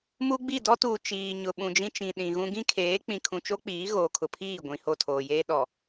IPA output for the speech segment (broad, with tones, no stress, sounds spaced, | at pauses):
m u˦ ɡ͡b i˦˨ d ɔ˦ t uː˨ t͡ʃ iː˨ ɲ ʊ˨ ɓ ũ˨ d͡ʒ ĩ˦ t͡ʃ ĩ˨ ɗ ĩ˨ ɣ ũ˦ ɡ ĩ˦ kʰ eː˨˦ k͡p ĩ˨ kʰ ũ˨ t͡ʃ o˦ k͡p iː˨˦ ɣ oː˨ kʰ ʊ˨ pʰ iː˦˨ ɡʷ ĩ˨ h o˦˨ tʰ oː˨ j eː˦ ɗ ɔ˨